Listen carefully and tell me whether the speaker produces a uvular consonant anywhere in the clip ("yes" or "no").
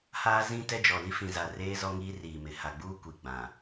no